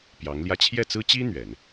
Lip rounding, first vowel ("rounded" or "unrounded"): unrounded